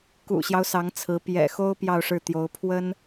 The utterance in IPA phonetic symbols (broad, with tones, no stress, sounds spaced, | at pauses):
k ṵ˨˩ ɕ j ɑ˦ ʊ̯ s ɑ˧˥ ŋ t͡sʰ ɹ̩˧˥ p j ɛ̰˨˩ x o˥ ʊ̯ p j ɑ˥˧ ʊ̯ ʂ ɻ̩˥˩ t̪ j o˧˥ ʊ̯ pʰ w ə˥ n